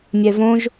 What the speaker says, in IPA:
mʲ ɛ v õ ʒ

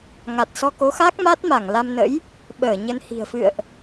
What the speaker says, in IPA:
ŋ a˨˩ t̚ s ɔ˧ k o˨˦ x a˦˥ k̚ m a˦˥ t̚ m a˧˩ ŋ l a˧ m n ə̰˧˥ j | ɓ əː˧˩ ɲ ə˧ n h i̤˨˩ ə̯ f ɨ̰˧˨ ə̯ ʔ

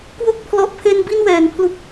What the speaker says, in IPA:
k w o˥˩ k̚ pʰ l ɔ˨˩ ʔ pʰ e˧ n b i˥˩ n w ɛː˩˦ n pʰ l u˦˥ k̚

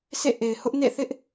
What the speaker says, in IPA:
s ḛ˦˨ ʔ e˨ ɪ̯ h ʊ˦ ʔ n ḛ˦˨ θ ɪ˦ ʔ

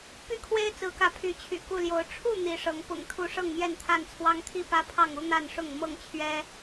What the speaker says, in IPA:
p y˥˨ kʰ w e˦ ɪ̯ t͡s ɹ̩˨˦ k ä˨˦ pʰ y˨˦ t͡ɕʰ y̰˨˩ k u˥˨ l j o˨˦ ʊ̯ ʈ͡ʂʰ u˥˨ n̪ i˨˦ ʂ ɤ˨˦ ŋ p ʊ̰˨˩ ŋ t̪ʰ u˨˦ ʂ ɤ˥˨ ŋ m j ɛ˥˨ n t̪ʰ a˥˨ n t͡sʰ w ɑ˦ ŋ t̪ʰ i˥˨ p ä˦ pʰ ɑ˥˨ ŋ u˦ n̪ a˥˨ n ʂ ʊ˥˨ ŋ m ɤ˥˨ ŋ t͡ɕʰ ɥ ɛ˦

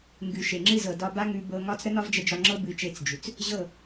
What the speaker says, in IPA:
ŋ ɡ ʉ˨ ʃ e˨ ŋ͡ǁ ɨ˧ z ɤ˨ d ɒ˧ b a˦ ŋ ʉ˧ b ɤ˧ ŋ ɒ˦ t͡s ɾ ə˦ n ɒ˦ v d͡ʒ ə˧ d͡ʒ ɒ˧ ŋ͡ǁ ɤ˦ b ɨ˨˦ t͡ʃ e˧ t͡s d͡ʒ ʉ˨ t͡s | ʑ ɤ˦˨

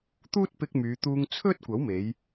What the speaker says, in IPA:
t̪ uː˥ t̚ p ɪ˧ k̚ m yː˨˧ t̪ uː˧ ŋ t͡sʰ ɵ˥ t̚ kʷ ɐ˨˥ w m e˨˧ j

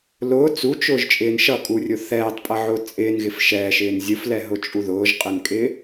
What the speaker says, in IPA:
l ʊː t͡s u t͡ʃ ʊː ʒ t͡ʃʼ ɪː n ʃ ʌ kʼ u rʲ ʊ θ ɛː tˤ pʼ ʌ ʕ ʊː t͡sʼ ɪː n ɣ ɪ f ʃ ɛː ʃ ɪː n zʲ ʊ f l ɛ ɦ ʊ t͡ʃʼ u ð ʊː ʒ qʼ ɪ n kʼ ɪː

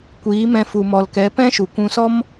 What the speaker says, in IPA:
kʷ iː˨˦ m ɛ̃˧ f u˨ m ɔ˨ l k ɛ˨˦ p ɛ̃˦ ʃ u˨ kʷ ũ˧ s ɔ˦ m

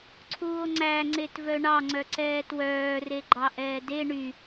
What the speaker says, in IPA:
ǀʰ uː o̯ ŋ͡ǀ æ ŋ͡ǀ e t v œ ɳ ɑ ŋ͡ǀ œ ǀ ɛː t w œː r e ɡ͡ǃ ɑ ʔ ɛː d e ɳ y

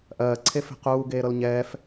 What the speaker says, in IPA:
ʔ ɜː ǀʰ e f e̤ q uː ɡ eː ɾ ɤ l ɲ ɛː f

